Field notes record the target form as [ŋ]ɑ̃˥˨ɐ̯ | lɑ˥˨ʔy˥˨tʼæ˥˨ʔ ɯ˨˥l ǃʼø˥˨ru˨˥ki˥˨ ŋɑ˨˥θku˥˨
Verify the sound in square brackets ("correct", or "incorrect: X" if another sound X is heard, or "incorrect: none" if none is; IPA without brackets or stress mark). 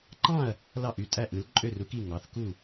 incorrect: ǃ